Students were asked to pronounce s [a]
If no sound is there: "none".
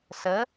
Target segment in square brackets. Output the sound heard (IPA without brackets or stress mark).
ə